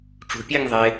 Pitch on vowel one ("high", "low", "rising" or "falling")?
low